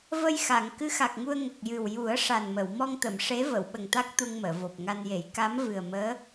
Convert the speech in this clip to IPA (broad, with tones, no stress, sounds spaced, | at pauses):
v ə˧ j x a˨˩˨ ŋ k ɨ˧˥ x a˨˩ k̚ ŋ u˧ ə̯ ŋ ə˨˩ k̚ j ɨ˨˩ w j u˨˩˦ ə̯ ʂ a˨˩ n m ə˨˩˨ w m ɔ˧ ŋ t̪ ə˨˩˨ m ʂ e˧˥ v ə˨˩˨ w ɓ ə˨˩ ŋ t̪ a˦˥ k̚ t̪ u˧ ŋ m əː˨˩˨ v o˨˩ p̚ ŋ a˧ n j e˨˩˦ j k a˧˥ m v ɨ˨˩ ə̯ m əː˧˥